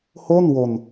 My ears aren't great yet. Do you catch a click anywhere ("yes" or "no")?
no